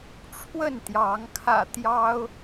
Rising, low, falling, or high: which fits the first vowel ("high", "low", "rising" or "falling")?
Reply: falling